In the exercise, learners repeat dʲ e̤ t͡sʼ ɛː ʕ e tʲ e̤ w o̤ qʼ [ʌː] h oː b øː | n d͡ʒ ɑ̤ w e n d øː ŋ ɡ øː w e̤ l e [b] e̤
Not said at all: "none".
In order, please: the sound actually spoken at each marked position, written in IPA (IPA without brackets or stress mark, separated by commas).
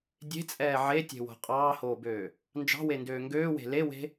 ɑː, w